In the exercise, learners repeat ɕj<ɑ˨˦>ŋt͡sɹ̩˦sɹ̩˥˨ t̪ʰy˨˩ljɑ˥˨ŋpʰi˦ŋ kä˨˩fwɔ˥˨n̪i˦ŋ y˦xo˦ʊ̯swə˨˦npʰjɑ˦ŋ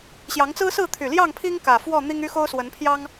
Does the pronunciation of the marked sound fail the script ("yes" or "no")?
no